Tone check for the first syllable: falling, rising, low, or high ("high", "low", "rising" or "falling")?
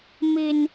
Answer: high